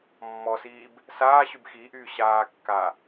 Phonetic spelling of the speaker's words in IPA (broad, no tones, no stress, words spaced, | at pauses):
mːɔsiːb | saːɕyb xiʔyː ɕaːkːa